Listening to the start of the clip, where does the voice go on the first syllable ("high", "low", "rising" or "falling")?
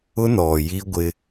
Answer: high